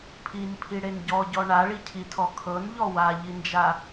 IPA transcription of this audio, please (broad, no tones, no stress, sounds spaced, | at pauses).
pʰ i n pʰ i ɽ e n ɟ ɔ ɟ ɔ ɳ a ɭ i cʰ i tʰ ɔ kʰ ɤ n ʎ ɔ w a ʎ i n d͡ʒ a